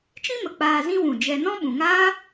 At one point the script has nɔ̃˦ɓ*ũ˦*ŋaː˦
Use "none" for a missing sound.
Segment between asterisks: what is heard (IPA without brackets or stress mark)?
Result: ũ˨